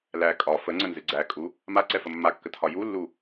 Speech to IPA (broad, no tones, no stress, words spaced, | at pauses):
læ kʼɒ fəŋ͡ǀənzɨ ɡ͡ǀækʼu | maǀɛfə mːakːətʰɒ julːu